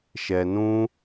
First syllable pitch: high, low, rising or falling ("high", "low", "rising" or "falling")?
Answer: low